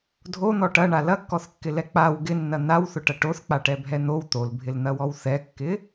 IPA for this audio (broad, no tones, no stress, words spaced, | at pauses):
dʱon̪ɔ ʈɐɳa lɐkːɔθkːɪlɛ k͡paw ɡɪnːɐ n̪awθʊʈɐ ʈoθk͡paʈɛbʱɛ n̪ow t̪olbʱɪln̪ɐwɔw θɛkːɪ